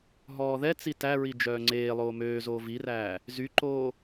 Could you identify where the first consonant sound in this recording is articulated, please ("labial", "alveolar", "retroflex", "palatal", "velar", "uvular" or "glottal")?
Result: glottal